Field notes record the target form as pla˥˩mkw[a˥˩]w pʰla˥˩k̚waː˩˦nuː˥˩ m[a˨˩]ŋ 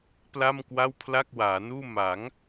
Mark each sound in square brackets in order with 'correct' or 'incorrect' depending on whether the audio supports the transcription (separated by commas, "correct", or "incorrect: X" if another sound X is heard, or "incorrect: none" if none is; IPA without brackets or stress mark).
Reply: correct, incorrect: a˩˦